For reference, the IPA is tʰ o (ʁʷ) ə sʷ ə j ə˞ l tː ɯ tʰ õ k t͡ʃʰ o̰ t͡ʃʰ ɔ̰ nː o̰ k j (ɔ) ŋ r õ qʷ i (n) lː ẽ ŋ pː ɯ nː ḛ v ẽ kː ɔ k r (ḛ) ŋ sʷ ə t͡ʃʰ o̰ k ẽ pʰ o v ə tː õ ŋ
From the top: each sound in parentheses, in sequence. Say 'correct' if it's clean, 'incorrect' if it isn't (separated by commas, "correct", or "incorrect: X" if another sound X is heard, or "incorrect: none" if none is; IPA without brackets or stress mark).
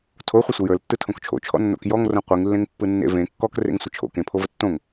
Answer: incorrect: χʷ, correct, incorrect: ŋ, correct